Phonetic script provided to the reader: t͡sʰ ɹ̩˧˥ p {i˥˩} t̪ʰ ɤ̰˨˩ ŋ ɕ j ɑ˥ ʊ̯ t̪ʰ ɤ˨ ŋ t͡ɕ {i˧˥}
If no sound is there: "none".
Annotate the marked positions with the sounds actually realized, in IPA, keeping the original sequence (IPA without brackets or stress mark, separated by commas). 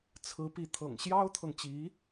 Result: i˧˥, i˧˥